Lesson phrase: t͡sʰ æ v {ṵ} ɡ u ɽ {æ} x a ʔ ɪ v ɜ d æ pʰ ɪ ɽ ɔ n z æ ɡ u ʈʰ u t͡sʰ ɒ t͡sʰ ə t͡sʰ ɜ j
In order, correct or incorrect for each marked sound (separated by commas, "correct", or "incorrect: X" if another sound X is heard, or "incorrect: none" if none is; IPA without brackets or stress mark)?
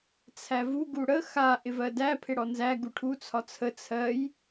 incorrect: u, incorrect: ə